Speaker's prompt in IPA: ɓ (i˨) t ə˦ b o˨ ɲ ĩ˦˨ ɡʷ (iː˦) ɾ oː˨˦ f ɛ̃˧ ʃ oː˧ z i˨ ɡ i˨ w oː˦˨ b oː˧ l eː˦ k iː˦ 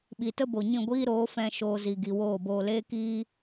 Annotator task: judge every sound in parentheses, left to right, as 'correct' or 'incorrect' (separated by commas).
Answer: correct, correct